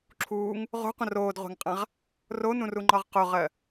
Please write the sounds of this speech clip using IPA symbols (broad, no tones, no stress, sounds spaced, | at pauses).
ǁʰ uː ŋ | ʁ o̤ qʷ ə̃ r oː d ʁʷ a̤ ŋ qʼ ã ʁ | r o n ũ r u ŋ͡ǃ ɒ ʁ q o ʁ ɜ